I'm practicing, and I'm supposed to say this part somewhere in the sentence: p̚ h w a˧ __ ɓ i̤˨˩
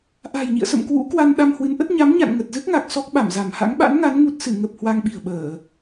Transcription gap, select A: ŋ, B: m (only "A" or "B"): A